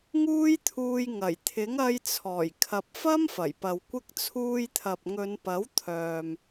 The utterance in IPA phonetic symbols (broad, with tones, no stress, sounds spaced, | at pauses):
ŋ uː˥ j t̪ʰ uː˧ j ŋ ɐ˨˩ j t̪ʰ ɪ˨˥ ŋ ɐ˧ j t͡sʰ ɔː˨˩ j kʰ ɐ˨ p̚ f ɐ˥ m f ɐ˨˩ j p ɐ˨ w kʷ ɪ˥ k̚ t͡sʰ uː˧ j t̪ʰ ɐ˨ p̚ ŋ ɵ˨˧ n p ɐ˨˥ w t̪ʰ œː˨ m